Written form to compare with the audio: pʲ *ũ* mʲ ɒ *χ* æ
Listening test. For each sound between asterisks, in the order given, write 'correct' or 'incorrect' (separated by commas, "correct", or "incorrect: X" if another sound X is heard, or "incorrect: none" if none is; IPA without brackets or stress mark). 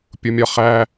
incorrect: u, correct